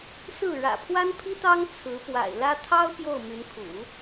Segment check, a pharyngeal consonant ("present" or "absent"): absent